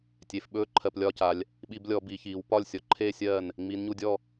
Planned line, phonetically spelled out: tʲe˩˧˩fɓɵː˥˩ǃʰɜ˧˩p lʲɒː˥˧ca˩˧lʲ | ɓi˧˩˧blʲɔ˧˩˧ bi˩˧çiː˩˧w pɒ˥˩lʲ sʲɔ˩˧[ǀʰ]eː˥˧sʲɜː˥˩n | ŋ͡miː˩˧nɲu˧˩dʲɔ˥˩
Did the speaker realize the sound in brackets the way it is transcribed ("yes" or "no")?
no